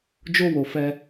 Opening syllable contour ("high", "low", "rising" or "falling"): high